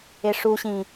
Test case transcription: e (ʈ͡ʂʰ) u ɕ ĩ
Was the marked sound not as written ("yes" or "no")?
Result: yes